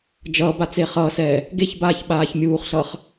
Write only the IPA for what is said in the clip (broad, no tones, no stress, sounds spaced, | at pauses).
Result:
d͡ʒ ʌː b a t͡s e χ ʌː s ɛː | ɡ e ç b aː ç ɓ aː ç mʲ uː χ ɬ ʌː χ